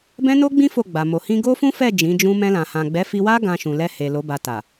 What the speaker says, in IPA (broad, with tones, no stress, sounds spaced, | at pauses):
b ɛ̃˦ n o˦ ɡ͡b ĩ˦ f o˦˨ ɡ͡b a˨ m o˨ h ĩ˧ ɡ o˦ f ũ˦ f ɛ˦˨ d͡ʒ ĩ˨˦ d͡ʒ ũ˦ m ɛ̃˧ l ã˨ h ã˨ ɡ͡b ɛ˨˦ f i˧ w a˦ ɡ ã˧ ʃ ũ˨ l ɛ˧ h e˨ l o˨˦ b a˧ t a˨